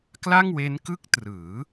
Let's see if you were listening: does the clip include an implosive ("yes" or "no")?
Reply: no